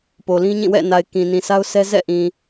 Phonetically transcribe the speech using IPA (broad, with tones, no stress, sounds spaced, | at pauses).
p o˨ l ĩ˦ ɲ ĩ˦˨ w ɛ̰˦˨ n a˨ ɪ̯ k ĩ˨ n ĩ˨ sʰ a˦ ʊ̯ s ɛ˦ z ɛ̰˦˨ ʔ ĩ˨